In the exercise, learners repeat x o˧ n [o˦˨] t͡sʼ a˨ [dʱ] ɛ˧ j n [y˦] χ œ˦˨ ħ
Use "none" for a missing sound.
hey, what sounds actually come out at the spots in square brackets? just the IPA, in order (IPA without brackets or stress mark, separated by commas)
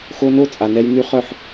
o˦˨, n, y˦